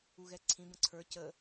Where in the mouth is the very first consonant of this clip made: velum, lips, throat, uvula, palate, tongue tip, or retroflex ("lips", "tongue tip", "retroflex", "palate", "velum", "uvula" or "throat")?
velum